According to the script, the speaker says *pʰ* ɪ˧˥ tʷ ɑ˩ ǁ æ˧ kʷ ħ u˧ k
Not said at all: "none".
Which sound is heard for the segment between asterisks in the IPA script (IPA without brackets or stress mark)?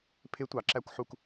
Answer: pʰ